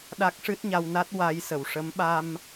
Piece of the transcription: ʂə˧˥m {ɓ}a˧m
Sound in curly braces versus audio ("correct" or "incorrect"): correct